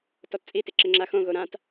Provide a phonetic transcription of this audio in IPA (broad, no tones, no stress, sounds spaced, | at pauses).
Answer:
t ɔ t t͡sʼ i t ɪ ǁ ɪ ŋ͡ǁ a x õ ɣ o ɾ ã t